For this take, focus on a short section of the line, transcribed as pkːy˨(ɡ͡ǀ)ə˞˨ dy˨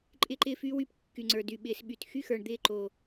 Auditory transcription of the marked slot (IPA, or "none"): ŋ͡ǀ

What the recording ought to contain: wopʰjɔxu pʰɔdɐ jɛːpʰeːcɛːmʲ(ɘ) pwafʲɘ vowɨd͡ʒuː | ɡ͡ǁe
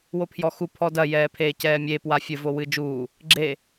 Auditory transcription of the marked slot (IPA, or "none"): e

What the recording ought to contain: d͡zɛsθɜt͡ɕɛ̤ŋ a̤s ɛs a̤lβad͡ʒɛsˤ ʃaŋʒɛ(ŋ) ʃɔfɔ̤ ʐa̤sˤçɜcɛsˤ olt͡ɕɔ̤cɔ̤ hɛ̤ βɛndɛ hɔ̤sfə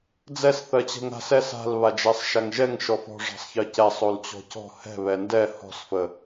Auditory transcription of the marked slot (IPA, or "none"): ŋ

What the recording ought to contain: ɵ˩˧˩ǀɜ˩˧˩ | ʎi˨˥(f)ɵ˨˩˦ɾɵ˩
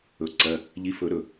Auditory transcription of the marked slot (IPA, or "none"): f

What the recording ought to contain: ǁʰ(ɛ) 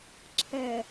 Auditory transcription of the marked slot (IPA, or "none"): ɛ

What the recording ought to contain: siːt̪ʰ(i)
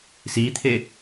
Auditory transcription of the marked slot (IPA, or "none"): e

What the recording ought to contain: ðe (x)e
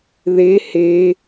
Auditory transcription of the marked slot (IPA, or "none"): h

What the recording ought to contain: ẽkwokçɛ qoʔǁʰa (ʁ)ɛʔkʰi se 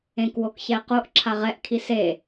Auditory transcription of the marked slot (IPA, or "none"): ʁ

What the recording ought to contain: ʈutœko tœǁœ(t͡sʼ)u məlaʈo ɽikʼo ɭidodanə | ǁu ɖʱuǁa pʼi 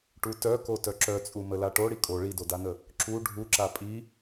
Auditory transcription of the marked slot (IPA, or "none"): t͡sʼ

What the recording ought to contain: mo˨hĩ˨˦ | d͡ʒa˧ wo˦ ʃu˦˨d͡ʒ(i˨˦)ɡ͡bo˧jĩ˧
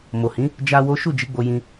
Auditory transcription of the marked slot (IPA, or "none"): i˨˦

